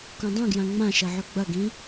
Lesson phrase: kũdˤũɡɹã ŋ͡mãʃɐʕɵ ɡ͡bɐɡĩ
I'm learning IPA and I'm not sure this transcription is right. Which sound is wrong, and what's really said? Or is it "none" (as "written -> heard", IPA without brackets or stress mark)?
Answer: ɹ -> j